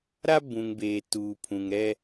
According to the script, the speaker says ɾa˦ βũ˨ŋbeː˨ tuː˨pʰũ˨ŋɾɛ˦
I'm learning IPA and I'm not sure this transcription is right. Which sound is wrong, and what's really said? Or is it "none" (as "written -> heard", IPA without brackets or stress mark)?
β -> b